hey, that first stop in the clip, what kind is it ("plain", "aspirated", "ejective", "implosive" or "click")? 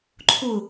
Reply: click